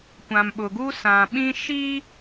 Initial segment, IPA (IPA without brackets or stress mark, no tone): kʷ